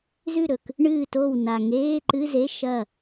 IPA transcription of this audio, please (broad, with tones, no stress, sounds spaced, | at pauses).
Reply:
z ʉ˥˩ ɾ ɵ˨˩ k | ɳ ɨː˥˩ t o˥˩ w n a˨˩ ŋ eː˧˥˧ ǃ ɨ˧˥˧ z e˧˥˧ ʃ ɐ˥˩